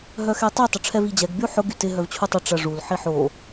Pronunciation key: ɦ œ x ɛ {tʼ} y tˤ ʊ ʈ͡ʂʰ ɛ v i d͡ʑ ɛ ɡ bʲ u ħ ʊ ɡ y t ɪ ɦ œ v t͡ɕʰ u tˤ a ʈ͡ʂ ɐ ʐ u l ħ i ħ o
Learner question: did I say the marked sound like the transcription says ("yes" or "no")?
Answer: no